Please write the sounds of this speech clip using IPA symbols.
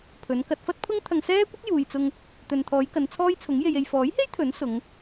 pʰ ɵ˨˧ n k ɐ˧ t̚ f ɐ˥ t̚ pʰ ʊ˥ ŋ t̪ʰ ɐ˧ ŋ s ɛː˥ kʷ ɐ˥ k̚ j uː˨ j t͡s ʊ˧ ŋ | t̪ ɵ˨ n t̪ʰ ɔː˨˧ j k ɐ˨˧ n t͡sʰ ɔː˥ j t͡sʰ ʊ˨˥ ŋ j e˧ j e˨ j f ɔː˨˥ j h e˥ j t̪ʰ ɵ˨˥ n s ʊ˨˧ ŋ

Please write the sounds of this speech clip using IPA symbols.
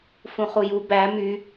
f ũ χ u j u b æ m y

